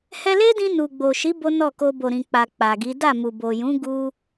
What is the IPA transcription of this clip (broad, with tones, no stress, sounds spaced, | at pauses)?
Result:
h ɛ˧ l e˦ d ĩ˧ n u˨ ɡ͡b o˨ ʃ i˨˦ b o˦ n ɔ˦˨ k o˧ b o˨ ɾ ĩ˨ k͡p a˨ k͡p a˨ ɡ i˨˦ d a˦˨ m u˨ b o˨ j ũ˨˦ ɡ u˧